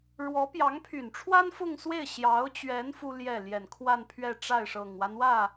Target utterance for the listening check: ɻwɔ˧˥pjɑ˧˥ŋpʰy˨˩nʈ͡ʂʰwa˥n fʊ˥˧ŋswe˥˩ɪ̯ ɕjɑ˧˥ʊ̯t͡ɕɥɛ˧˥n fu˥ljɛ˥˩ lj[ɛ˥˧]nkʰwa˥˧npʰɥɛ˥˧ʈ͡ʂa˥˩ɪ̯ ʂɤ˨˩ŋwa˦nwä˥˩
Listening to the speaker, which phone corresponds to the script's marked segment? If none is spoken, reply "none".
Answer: ɛ˨˩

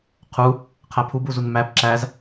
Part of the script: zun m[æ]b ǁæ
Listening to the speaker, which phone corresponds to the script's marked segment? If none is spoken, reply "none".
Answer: æ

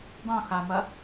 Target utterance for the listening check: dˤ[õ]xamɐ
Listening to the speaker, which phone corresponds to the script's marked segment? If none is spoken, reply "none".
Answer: õ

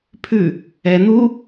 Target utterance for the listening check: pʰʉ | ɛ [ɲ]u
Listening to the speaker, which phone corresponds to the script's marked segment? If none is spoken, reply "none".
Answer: n̪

